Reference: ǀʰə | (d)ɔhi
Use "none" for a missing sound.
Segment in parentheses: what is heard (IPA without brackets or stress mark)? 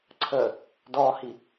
d